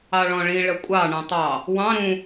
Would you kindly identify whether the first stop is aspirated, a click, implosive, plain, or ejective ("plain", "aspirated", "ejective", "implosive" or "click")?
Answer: ejective